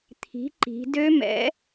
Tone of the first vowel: rising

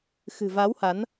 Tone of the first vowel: low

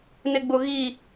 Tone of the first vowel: low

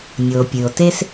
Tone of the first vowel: low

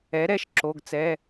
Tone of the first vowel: rising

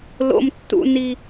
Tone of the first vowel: high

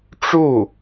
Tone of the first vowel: falling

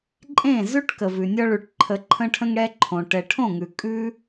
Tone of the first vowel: falling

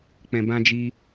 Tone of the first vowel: low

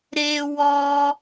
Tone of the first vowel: high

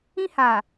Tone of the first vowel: high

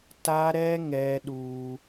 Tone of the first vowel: high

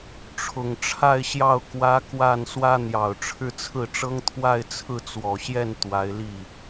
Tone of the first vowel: low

